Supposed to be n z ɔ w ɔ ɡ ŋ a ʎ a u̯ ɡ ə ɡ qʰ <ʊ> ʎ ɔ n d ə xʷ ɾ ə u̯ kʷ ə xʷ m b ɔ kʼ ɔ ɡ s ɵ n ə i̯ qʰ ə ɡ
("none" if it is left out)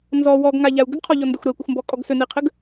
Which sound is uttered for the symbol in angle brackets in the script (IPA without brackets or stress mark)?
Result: ɔ